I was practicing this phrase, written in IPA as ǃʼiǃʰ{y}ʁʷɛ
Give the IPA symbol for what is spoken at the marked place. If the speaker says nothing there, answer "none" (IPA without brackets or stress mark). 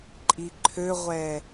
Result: ø